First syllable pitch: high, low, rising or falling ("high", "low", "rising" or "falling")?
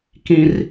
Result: high